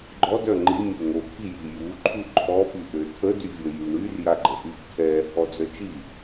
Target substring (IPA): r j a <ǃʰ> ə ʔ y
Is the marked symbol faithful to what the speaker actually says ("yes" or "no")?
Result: no